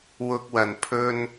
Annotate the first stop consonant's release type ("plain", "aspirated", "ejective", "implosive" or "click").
plain